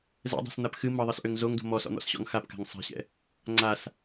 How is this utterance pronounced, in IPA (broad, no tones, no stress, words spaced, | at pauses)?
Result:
zɛ̰dˤo̤sn̪ap xɨ mʌðˤʌsʔøŋ zoŋdo̤ mɔsɔ̰n̪ɔ̰sɕɔ̰ŋ xapka̤ŋ sˤa̤ɕɛ̰ | ŋ͡ǀas